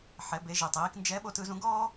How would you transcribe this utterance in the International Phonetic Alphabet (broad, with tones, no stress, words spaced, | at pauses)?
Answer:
ħɛ˩˧be˩˧ ʒi˩tˤiː˩˧knd͡ʒɛ˧˥ɓo˧t ɯ˩˧zũ˧ɡɔː˥